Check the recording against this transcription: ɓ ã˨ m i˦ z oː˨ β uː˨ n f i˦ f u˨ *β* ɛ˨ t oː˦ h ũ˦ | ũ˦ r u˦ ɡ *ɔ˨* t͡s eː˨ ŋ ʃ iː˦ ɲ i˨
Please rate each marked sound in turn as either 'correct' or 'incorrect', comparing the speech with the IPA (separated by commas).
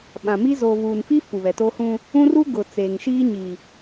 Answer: correct, incorrect